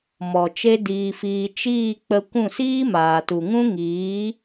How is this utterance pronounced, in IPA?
m ɔ˨ t͡ʃ e˦ d iː˧ f iː˧ t͡ʃ iː˦˨ k͡p ə˧ kʷ ũ˦˨ s iː˦ m aː˨ t u˨ ŋ ũ˦ ŋ iː˨˦

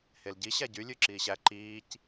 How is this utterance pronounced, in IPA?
h e l ɟ i ɕ æ ɟ y lʲ ʉ ǁ iː ɕ æ ǃ iː c

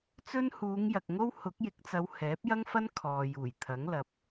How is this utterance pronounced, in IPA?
t͡s ɵ˥ n h uː˨˧ ŋ j ɐ˨ k̚ ŋ o˥ w h ʊ˨˥ k̚ j ɪ˨˥ k̚ t͡s ɐ˨˧ w h ɛː˨˥ p̚ j ɐ˥ ŋ f ɐ˥ n kʰ ɔː˨ j uː˨˩ j t̪ʰ ɐ˨˥ ŋ l ɐ˨˥ p̚

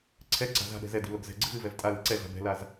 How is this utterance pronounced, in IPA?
ǀʰ ɛ ǀ a̤ z a̤ ɗ ɛ̤ z ɛ d i̤ l o ɡ z ɛ̤ ɡ͡ǀ ɨ v ɨ v ɛ v tʼ a l i̤ ǀ ɛ ɮ a̤ b ɛ̤ l a z

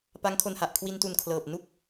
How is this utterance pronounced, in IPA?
p a˦˥ ŋ kʰ o˧ n h a˨˩ ʔ kʰ w i˧ n t u˨˩ n kʰ l ɤː˨˩ p̚ n u˥˩ k̚

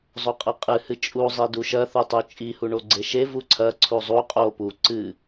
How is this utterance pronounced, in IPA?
zˤ o qʼ ɐ qʼ ɨ h ɨ t͡ʃʼ u zˤ i d u ʃ ɐ θ u tˤ u t͡ʃʼ i h u ɳ o ɡ͡ǀ e ʃ e v u ǀʰ ɐ ǀʰ u zˤ u qʼ o p u ǀ ɨ

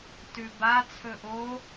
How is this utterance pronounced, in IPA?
t ʉ b a t͡sʰ ɵ ʔ o

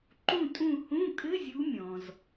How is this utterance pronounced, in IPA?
ǃ ũ˦˨ tʼ ũ˦˨ h ũ˧˥˧ kʼ ɘ˧˥˧ zʲ u˨˦ mʲ ɔ̃˩ z

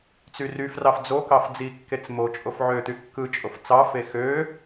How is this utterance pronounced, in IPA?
t͡s y r y f r ɑ f d͡z o k ɑ f d͡z i kː e t͡s m o t͡ʃʼ o f ʕ ø t̪ y kː ɯ t͡ʃʼ o f t͡s ɑ f e x ø

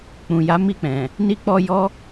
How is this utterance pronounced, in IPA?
k͡p ũ˨ j a˨˦ m i˦˨ k͡p ɛ̃˨ | n i˧ k͡p ɔ˧ j ɔ˦

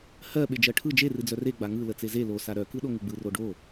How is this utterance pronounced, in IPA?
h ɜ ɓ e d͡ʒ ɜ ʈʰ ɯ d͡ʒ e r ɨ d͡z œ r e ɡ͡b a ŋ ɯ l ə t͡s e z e l o s a ɾ œ k ɯ ɗ o ŋ ɨ ɡ͡b ɯ r o ɖ o

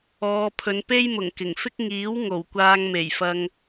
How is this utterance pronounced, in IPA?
ɔː˨˧ pʰ ɵ˨˧ n p e˥ j m ʊ˨˩ ŋ k ɪ˨˩ ŋ f ɪ˥ k̚ ŋ iː˨˥ w ŋ o˨˩ w kʷ aː˧ ŋ m e˨˩ j f ɐ˧ ŋ

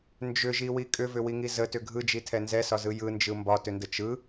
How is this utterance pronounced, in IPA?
n d͡ʒ ʏ ʒ i w i kʼ ʏ v ʏ w i ŋ i z ə t ʏ ɡʱ ɯ d͡ʒ i tʰ ɛ n z ɛ s ɒ z ɯ j ɯ n d͡ʒ ɯ m b ɒ t ʏ n d ə t͡ʃ ɯ

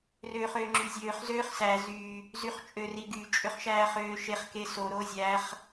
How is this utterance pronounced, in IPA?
r øː χ øː ŋ͡ǁ y zʲ øː χ z øː χ s æ z y | z y χ t͡ʃʼ ø r i ɡ y t͡ʃʼ ø χ ʃ æː χ øː ʃ e χ k e s o ɾ o zʲ æ χ

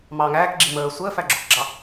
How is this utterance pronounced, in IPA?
m ɑː ŋ æː k ɡ͡ǁ i m əː sʷ əː f æ ɡ͡ǁ ʊ k ɡ͡ǁ ɑ

